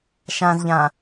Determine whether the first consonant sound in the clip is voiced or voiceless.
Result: voiceless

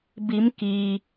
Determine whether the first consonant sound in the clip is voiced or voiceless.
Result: voiced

